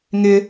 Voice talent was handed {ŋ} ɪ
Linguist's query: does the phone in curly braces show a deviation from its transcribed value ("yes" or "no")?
no